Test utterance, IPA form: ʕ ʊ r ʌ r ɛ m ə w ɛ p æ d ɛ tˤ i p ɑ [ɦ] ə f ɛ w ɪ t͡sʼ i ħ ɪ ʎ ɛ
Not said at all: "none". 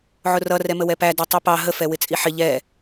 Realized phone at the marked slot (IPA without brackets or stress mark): ɦ